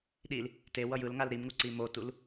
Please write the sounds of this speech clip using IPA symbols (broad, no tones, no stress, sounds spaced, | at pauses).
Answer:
ɗ i l | t e w ʌ j ɯ l ŋ a l ɾ i m ŋ u ǀ i m o t u l